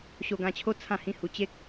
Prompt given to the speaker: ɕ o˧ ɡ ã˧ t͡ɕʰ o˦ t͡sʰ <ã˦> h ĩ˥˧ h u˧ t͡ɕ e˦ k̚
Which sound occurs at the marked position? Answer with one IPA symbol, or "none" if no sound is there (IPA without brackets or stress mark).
ã˥˧